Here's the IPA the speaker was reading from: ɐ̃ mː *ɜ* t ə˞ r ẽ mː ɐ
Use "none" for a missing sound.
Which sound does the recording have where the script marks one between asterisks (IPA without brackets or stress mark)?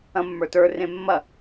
ə˞